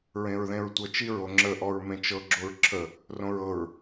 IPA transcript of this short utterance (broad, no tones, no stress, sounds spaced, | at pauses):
ɹ ẽ ɹ ð ẽ ɹ tʷ ɤ t͡ʃ i ɹ o ŋ͡ǁ ə ʔ ɔ ɹ m ẽ t͡ʃ ɤ ɡ͡ǁ o ɹ ǁʰ ə | r õ ɹ ɤ ɹ